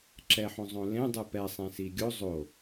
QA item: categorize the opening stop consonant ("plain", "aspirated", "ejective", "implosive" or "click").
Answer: click